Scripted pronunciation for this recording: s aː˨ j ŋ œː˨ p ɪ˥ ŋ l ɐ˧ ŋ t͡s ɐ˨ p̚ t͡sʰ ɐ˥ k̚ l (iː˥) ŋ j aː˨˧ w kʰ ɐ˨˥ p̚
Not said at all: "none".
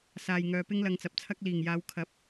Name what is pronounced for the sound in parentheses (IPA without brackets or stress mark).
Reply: iː˨˩